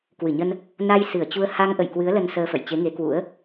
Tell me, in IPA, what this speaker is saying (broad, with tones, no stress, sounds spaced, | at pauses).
k w ɨ˧˩ ɲ ə˧ n | n a˧ j s ɨ˧˩ ə̯ t͡ɕ u˧ ə̯ h a˧ ŋ ʔ ə̰˧˨ j k w ɨ˨˦ ə̯ l ə˧ n s əː˧ f ə̰˧˨ j t͡ɕ e˨˦ ŋ e˨˦ k w ṵ˧˥ ə̯